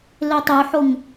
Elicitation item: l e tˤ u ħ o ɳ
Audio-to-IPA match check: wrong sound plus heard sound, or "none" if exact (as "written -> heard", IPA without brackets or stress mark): ɳ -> ŋ